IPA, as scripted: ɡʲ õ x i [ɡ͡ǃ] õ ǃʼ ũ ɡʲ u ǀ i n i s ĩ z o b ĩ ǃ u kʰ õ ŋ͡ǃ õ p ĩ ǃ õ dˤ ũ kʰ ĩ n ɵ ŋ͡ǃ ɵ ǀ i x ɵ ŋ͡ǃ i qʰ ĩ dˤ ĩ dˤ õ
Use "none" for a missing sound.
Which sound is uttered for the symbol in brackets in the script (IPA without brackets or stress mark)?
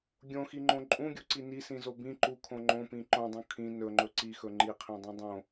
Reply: ŋ͡ǃ